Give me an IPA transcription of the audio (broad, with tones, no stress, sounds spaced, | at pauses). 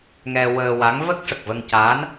ŋ ɛ˧ w əː˧ w a˧˥ ŋ v ə˦˥ k̚ ʂ ə˨˩ k̚ v ə˧ ŋ c a˧˥ n